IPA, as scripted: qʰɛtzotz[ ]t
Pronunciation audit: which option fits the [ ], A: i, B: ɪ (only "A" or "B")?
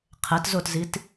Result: A